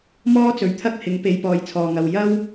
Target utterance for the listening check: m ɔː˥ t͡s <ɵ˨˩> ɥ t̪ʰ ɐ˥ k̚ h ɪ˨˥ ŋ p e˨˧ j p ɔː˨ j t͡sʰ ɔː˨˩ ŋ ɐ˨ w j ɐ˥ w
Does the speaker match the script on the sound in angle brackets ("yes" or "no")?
no